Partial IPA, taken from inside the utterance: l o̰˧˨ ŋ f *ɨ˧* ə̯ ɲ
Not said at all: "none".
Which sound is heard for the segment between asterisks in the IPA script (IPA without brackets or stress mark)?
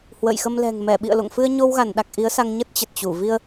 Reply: ɨ˧